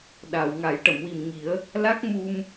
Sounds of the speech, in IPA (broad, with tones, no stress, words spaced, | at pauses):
ɗa˨˩˨w ŋa˨˩˦jʈə˨˩˨mwi˨˩m ŋi˨˩˦ə̯ | la˦˥k̚ mu˧m